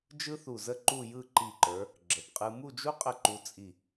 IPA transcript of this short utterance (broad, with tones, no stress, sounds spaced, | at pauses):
d͡ʒ ɯ˥ θ u˧˩ z ə˥˧ ǃ u˥˧ j ɯ˥˧ ǃ i˧˩ ǃ ə˞˩˧ | ɡ͡ǁ ə˩˧ p qʼ ɯ˧ m u˥˧ d͡ʒ u˥ qʼ ə˥˧ ǃ u˧ t͡sʼ i˧˩